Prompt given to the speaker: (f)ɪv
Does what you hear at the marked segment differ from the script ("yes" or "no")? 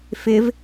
no